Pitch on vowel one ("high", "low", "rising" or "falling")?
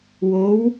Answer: rising